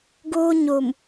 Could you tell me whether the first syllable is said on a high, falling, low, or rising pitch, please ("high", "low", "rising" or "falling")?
high